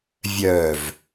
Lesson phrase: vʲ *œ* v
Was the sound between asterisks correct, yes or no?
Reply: yes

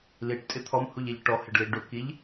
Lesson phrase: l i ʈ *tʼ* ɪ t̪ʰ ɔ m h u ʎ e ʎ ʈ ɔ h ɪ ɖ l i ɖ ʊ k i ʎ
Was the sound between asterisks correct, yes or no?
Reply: yes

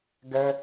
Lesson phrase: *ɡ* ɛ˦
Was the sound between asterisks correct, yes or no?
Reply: yes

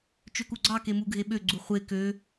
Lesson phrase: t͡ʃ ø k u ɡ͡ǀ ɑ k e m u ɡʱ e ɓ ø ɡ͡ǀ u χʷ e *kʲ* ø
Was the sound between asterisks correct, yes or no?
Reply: no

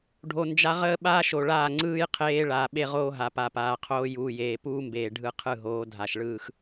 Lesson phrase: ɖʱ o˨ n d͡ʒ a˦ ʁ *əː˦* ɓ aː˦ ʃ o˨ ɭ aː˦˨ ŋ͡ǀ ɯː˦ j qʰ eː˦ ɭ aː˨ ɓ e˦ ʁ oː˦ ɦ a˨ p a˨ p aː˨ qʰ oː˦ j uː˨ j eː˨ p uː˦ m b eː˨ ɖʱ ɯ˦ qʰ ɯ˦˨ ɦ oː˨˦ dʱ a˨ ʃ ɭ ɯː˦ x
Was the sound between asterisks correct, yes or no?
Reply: yes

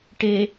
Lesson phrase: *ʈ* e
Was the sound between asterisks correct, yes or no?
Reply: yes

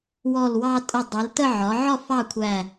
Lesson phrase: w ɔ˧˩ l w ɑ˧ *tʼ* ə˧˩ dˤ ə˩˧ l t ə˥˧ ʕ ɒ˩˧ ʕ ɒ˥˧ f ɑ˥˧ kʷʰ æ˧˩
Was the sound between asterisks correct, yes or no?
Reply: yes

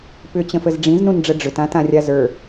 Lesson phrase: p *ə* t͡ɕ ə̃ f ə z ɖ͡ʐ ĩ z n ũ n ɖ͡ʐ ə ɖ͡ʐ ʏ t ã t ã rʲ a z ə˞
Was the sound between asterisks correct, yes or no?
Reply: no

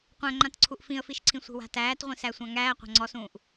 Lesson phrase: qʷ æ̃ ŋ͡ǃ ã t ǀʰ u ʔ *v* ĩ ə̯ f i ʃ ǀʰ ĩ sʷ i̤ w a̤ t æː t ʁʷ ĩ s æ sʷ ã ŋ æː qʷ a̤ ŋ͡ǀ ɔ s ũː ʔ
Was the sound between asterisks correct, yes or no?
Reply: no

